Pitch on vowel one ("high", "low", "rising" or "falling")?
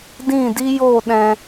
falling